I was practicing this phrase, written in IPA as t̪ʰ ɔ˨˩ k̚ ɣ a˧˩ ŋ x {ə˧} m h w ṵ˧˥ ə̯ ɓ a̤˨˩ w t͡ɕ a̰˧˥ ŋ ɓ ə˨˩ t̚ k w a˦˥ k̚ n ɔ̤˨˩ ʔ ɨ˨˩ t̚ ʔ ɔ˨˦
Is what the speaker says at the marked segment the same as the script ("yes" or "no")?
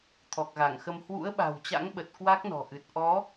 yes